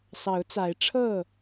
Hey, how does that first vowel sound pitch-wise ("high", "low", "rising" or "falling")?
rising